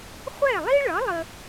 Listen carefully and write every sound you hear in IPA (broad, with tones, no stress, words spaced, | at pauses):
χʷɛ˥˩lˠi˥ɭʌ˩˥ lˠə˧